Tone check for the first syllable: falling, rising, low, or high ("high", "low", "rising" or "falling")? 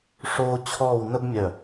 high